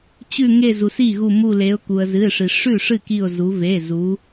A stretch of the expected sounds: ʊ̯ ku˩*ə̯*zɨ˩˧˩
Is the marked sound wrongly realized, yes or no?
no